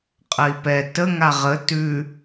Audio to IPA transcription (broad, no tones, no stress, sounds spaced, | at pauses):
qʼ ə i̯ p ɛ t ə ŋ a ʁ ə t ʉ